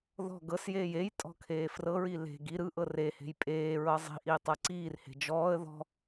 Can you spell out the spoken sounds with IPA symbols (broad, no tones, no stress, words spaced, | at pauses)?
ðɔ̤ ɡɤsjeːj ej tʼɔ̤kʰeːfrɤɹi le̤ ɡi ɾɯʔɤ re he̤jpʼeːɹɤ zˤi̤ʔiː tˤɤǀiːrhe̤ d͡ʒɔːə̯ ðɔ̤